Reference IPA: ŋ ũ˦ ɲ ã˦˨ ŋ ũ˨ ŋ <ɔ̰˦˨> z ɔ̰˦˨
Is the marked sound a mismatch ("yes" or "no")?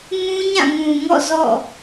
no